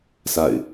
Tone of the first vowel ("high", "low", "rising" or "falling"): falling